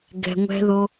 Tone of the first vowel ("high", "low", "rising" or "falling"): low